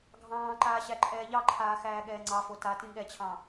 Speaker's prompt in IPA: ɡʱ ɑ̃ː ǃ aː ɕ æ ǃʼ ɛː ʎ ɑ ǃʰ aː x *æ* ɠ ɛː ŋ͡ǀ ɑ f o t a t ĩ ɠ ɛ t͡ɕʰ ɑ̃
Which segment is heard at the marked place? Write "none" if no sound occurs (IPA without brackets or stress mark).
æː